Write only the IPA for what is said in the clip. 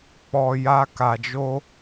k͡p ɔ˨ j a˧ k a˨ d͡ʒ o˧

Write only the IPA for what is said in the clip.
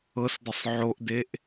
ɤ s d ə sˤ ʕ o ʔ d e ʔ

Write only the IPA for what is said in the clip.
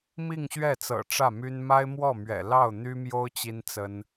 m i˥˧ ŋ ɕ ɥ ɛ˥˩ t͡s ɤ̰˨˩ ʈ͡ʂ ä˥˩ m y˥ n m a˥ ɪ̯ m w ɔ˥˩ m ɥ ɛ̰˨˩ l ɑ˥˩ ʊ̯ n̪ y˥ m j o˥ ʊ̯ t͡ɕ i˥ n t͡s ə˥ n

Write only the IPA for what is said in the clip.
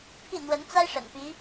pʰ i˥˩ n̪ w ə˧˥ n t͡s a˥ ɪ̯ ʂ ə̰˨˩ n p i˧˥

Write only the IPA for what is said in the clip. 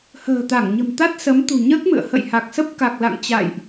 h ə̤ː˨˩ t̪ a˧˩ ŋ ɲ ə̤˨˩ m t̪ a˦˥ t̚ s ə˨˦ m t̪ ṳ˨˩ ɲ əː˦˥ k̚ m ɨ̰˧˨ ə̯ h ə̰˧˨ j h a˨˩ k̚ s ə˦˥ p̚ k a˨˩ k̚ l a̰˧˨ ŋ t͡ɕ a̰˧˨ j ʔ

